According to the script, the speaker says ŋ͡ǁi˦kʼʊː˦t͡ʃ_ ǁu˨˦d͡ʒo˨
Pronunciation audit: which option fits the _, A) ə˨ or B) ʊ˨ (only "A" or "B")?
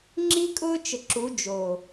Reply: A